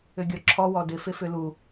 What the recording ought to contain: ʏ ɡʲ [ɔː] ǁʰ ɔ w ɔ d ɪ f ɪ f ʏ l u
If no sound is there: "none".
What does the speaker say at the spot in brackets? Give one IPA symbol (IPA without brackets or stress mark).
ɔ